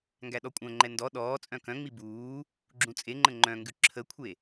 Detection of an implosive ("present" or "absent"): present